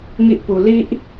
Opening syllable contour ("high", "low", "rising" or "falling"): high